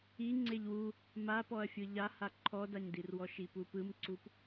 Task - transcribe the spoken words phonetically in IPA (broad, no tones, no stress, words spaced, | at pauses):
i ŋ͡ǀeʎwu | mapɔɐ̯ fʲɯʎaha ǃʰɔdaɲdirwɔ ʃipupɯmǀup